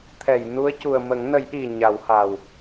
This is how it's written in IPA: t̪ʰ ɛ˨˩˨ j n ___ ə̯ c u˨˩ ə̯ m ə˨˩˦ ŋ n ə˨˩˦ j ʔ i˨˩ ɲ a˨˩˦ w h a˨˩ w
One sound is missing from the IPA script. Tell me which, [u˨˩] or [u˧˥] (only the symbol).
u˧˥